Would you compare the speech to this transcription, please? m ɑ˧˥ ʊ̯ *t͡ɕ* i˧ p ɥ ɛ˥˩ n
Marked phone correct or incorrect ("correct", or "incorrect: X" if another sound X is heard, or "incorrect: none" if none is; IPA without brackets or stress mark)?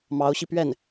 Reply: incorrect: ɕ